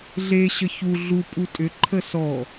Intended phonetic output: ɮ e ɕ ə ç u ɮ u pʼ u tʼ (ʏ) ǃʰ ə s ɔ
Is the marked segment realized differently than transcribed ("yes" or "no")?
no